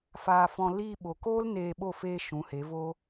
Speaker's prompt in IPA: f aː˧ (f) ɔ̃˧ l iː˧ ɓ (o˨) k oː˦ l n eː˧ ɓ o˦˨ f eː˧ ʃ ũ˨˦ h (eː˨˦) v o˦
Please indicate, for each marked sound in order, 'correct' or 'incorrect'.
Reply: correct, correct, incorrect

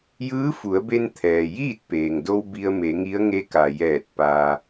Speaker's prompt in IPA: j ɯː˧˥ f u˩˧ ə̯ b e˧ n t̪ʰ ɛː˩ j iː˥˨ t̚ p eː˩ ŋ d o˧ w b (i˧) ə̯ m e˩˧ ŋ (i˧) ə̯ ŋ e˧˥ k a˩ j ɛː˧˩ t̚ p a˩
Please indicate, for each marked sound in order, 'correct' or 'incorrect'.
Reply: correct, incorrect

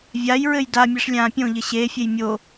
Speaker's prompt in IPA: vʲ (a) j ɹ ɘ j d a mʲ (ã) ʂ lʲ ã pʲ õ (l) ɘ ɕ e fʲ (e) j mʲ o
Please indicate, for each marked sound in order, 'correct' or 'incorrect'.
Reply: correct, incorrect, incorrect, correct

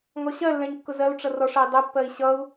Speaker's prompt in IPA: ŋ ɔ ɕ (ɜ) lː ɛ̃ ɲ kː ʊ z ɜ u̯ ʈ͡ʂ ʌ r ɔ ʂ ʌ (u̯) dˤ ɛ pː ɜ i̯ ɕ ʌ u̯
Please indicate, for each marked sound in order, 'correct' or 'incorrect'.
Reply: correct, incorrect

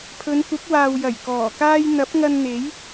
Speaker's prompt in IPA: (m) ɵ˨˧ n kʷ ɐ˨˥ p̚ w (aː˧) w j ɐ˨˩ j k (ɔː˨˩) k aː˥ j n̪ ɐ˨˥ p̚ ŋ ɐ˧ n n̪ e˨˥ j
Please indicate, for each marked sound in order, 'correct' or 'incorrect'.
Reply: incorrect, incorrect, correct

